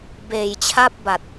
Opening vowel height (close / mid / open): mid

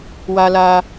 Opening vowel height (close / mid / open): open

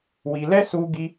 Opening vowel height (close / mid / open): close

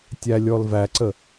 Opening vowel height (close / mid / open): open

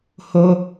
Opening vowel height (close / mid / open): mid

